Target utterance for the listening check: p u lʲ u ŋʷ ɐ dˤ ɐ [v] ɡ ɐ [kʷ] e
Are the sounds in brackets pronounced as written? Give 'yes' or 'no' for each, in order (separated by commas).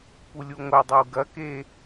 no, no